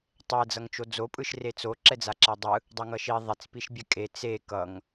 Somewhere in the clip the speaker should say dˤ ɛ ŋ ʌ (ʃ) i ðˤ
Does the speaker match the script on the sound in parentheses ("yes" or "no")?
yes